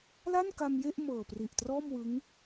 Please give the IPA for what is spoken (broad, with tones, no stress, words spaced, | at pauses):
la˥˩nka˧mje˥˩ʔ mɤː˨˩pri˨˩ʔtrɔː˥˩mwɯ˦˥ŋ